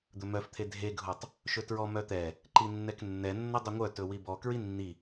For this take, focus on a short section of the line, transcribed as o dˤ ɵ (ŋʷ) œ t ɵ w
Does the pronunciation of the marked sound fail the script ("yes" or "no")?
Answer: no